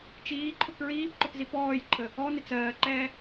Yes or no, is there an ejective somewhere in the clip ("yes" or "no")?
no